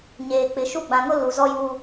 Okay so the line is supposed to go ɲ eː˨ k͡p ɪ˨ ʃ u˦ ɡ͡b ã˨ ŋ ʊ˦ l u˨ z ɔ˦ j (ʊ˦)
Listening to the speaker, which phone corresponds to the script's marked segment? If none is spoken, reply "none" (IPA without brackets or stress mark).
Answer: u˦